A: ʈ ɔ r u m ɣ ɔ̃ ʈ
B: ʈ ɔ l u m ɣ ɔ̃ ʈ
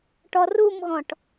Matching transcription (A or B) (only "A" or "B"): A